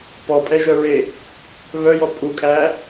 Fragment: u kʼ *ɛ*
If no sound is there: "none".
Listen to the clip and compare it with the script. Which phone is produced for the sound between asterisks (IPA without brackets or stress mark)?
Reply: æ